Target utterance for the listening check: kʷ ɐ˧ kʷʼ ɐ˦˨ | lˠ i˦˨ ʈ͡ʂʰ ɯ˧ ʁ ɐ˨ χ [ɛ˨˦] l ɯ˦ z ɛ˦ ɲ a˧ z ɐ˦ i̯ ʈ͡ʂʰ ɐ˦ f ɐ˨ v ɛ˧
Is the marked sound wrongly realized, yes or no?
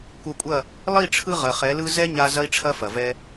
no